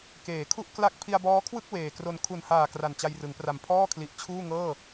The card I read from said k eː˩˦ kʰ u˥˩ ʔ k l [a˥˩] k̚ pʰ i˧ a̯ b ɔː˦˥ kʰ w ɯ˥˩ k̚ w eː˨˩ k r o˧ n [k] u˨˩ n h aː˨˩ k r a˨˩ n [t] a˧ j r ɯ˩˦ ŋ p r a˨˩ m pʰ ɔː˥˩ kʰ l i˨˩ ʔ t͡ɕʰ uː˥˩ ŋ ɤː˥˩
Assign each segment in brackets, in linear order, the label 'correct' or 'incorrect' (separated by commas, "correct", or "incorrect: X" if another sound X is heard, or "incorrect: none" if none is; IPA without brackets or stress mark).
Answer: correct, incorrect: kʰ, incorrect: t͡ɕ